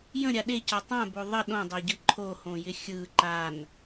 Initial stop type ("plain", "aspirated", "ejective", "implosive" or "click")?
implosive